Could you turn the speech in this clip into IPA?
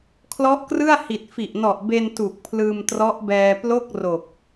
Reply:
kʰ l ɔ˦˥ ʔ k r ɯ˥˩ a̯ h i˨˩ t̚ f i˨˩ ʔ n ɔ˨˩ ʔ b e˧ n t u˨˩ k̚ pʰ l ɯː˧ m t r ɔ˦˥ ʔ b ɛː˧ p l o˥˩ k̚ r o˨˩ k̚

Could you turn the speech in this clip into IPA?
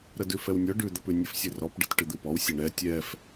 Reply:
ɾ ə d ʉ f ɛ w nʲ ɔ ɖ ʉ d̪ ə p ʉ nʲ ɨ f sʲ ɘ r ɔ p ɖ ɨ t ʈ ɨ d̪ ɨ p ɔ w sʲ ɘ ɳ ɛ tʲ ɛ f

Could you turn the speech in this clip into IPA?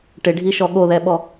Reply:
ʈ ɪ ɖʱ i ʃ ɔ ɠ o ð ɛ ɓ ɔ

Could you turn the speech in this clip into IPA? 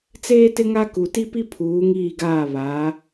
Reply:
t͡s eː˦ t ɪ˦ ŋ a˦ k u˨ t i˦ p i˦ pʰ uː˨˦ ŋ iː˦˨ ɡ aː˦˨ β aː˨˦

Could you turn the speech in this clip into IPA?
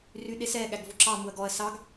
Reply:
r y ɗ e s ɛ ɠ æ ɡ v o ǁ ɑ m u ɐ̯ ɡ ɔ ɐ̯ s ɑ ɡ

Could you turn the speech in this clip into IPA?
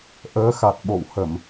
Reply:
ʔ əː˨˦ x a˨˩ t̚ ɓ o̰˧˨ w h ə˧˩˨ m

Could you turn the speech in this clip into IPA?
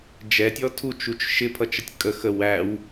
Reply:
d͡ʒ ɛ tʲ ɔ tʰ u t͡ʃ u t͡ʃ ʃ ɪ pʰ ʌ t͡ʃ ə tʲ kʼ ə x ə w æ w

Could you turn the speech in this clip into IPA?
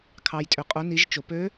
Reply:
kʰ ɑ˩ j tʼ ø˩ qʼ o˩˧ n i˩˧ ʒ t͡ʃ o˩ p ø˧˥

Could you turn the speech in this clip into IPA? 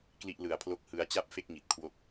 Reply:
k l i˥˩ ʔ l ɯ˨˩ a̯ pʰ l o˥˩ k̚ h ɯ˦˥ a̯ t͡ɕ a˥˩ p̚ f e˥˩ k̚ ŋ i˨˩ t̚ kʰ w o˥˩ k̚

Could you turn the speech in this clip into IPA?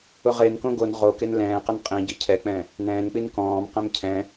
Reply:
ʊ ʁ e n k õ ɡ o n ʁ o k e n l ɛ̃ː q ə n qʼ ĩ ɟ i cʰ ɛ k͡p ɛ̃ | n ɛ̃ː n k͡p i n k ɔ̃ː m q ɛ̃ m cʰ ɛ̃

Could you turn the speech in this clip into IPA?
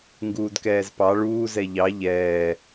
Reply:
ŋ ɡ uː d k ɛː z p ɑ ɭ uː z ɛ ʎ ɑ ʎ ɛː

